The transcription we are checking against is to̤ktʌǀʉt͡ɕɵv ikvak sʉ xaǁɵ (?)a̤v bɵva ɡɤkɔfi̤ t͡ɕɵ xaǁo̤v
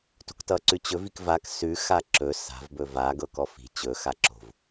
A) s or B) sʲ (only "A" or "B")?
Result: A